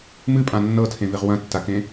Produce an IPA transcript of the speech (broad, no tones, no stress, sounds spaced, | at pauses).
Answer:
m ɨ pʼ ã nː ɤ tʰ ẽ v e ʁ w ɐ̃ tː a k ẽ